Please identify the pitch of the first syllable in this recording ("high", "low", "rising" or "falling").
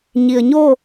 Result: low